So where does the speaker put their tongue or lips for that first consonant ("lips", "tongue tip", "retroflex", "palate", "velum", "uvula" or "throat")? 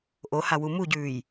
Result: throat